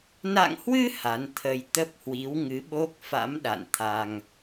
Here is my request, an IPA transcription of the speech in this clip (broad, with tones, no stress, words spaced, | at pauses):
na̰˧˨ŋhwɨ˧ ha˨˦nt̪ʰə˧j t̪ə˦˥p̚hwi˨˦w ŋɨ˨˦ɓo˦˥k̚fa̰˧˥m ɗa̰˧˨nt̪ʰa˧ŋ